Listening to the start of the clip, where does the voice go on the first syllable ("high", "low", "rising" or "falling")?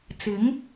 rising